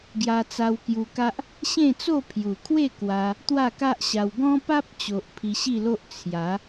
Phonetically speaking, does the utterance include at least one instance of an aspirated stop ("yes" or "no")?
yes